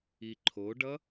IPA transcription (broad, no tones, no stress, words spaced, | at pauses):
iǃʰoɖʌ